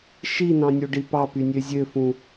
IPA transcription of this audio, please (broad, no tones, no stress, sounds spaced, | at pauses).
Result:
ʃ i n ɑ̃ nʲ o ɖ i p ɑ p y nʲ ø zʲ ø f ũ